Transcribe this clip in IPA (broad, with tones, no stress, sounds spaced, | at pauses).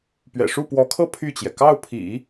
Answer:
p ɥ ɛ̰˨˩ ʂ u˥˩ p w ɔ˧˥ kʰ ɤ˥˧ pʰ y˥˩ t͡ɕ j ɛ˩ k ɑ˥˩ ʊ̯ pʰ ḭ˨˩˦